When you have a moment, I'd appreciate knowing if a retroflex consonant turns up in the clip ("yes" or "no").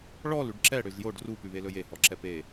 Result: yes